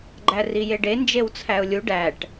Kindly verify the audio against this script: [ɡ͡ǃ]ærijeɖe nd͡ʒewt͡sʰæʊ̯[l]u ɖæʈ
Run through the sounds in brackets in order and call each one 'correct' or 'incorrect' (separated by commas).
correct, incorrect